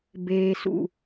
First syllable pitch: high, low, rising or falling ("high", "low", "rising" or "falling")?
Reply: low